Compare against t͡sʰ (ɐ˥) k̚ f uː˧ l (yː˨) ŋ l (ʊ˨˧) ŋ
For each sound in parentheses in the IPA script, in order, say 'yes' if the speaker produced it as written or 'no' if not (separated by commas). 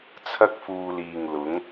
yes, no, yes